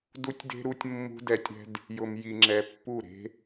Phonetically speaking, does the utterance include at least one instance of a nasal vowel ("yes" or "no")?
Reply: no